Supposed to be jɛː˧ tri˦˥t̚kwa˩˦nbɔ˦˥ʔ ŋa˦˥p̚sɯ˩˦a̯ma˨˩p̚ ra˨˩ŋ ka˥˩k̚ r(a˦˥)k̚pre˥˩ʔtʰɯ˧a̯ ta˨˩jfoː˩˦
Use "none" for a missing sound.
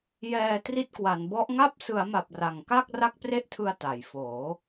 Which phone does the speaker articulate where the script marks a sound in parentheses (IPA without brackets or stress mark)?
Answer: a˥˩